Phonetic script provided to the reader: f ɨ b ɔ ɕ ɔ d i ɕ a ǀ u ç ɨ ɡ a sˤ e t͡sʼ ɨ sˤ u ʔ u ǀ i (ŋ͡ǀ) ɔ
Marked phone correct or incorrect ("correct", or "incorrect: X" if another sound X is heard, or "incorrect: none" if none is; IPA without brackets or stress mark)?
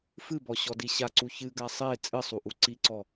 incorrect: ǀ